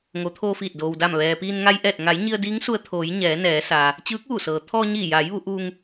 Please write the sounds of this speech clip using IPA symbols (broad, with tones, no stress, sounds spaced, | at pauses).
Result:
ŋ o˩˧ t̪ʰ oː˧ f iː˧˩ t̚ d oː˩ w d a˧˩ m ʋ ɛː˩ p iː˧ n ŋ a˧ j ʔ ɛː˧˩ t̚ ŋ a˩˧ j ɲ i˧ ə̯ d iː˧˥ ŋ s u˧ ə̯ t̪ʰ oː˩˧ j ɲ ɛː˩˧ n ɛː˩˧ s aː˩ | t͡ɕ ɯː˧˥ k̚ ʋ u˧˩ s ɤː˩ t̪ʰ ɔː˧ ɲ iː˧˩ j aː˩˧ j ʋ u˩˧ ʔ uː˧ ŋ